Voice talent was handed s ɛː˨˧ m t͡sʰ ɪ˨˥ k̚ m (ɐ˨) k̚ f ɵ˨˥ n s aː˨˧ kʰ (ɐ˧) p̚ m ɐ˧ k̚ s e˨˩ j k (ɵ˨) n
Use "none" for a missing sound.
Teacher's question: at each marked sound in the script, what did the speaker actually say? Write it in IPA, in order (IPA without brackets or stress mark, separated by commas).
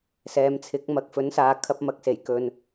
ɐ˨˥, ɐ˧, ɵ˨